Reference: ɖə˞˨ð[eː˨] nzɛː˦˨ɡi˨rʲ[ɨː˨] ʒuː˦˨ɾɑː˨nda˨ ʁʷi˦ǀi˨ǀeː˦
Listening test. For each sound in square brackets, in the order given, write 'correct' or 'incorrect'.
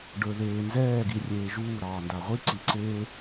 correct, incorrect

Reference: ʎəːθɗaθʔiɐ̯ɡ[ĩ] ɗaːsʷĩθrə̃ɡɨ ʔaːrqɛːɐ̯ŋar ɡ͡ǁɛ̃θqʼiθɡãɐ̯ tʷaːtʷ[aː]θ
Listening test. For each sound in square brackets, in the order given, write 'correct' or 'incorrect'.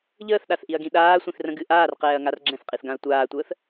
correct, incorrect

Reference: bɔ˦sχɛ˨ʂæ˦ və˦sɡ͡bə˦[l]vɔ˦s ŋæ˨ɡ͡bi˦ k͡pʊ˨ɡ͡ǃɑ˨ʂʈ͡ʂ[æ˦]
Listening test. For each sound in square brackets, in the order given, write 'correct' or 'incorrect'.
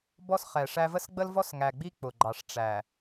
correct, incorrect

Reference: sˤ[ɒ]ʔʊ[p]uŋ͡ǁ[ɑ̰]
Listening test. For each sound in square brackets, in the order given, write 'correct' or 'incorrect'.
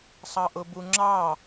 incorrect, incorrect, incorrect

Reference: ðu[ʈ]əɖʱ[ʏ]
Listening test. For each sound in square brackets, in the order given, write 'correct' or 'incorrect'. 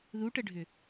correct, correct

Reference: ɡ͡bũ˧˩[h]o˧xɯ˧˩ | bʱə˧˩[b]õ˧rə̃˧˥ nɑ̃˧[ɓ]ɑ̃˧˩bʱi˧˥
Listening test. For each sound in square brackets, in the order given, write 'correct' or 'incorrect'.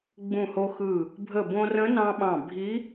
correct, correct, correct

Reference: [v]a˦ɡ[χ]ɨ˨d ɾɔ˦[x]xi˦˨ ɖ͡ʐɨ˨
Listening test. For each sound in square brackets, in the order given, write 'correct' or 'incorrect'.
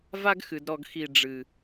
correct, incorrect, incorrect

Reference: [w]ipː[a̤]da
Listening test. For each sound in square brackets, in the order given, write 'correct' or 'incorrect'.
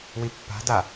correct, correct

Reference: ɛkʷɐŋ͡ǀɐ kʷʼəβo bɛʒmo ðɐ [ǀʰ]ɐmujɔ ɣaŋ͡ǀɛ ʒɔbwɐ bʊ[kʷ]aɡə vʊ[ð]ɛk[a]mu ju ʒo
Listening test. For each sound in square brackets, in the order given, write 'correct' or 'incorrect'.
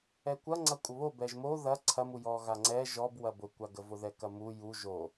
correct, correct, correct, incorrect

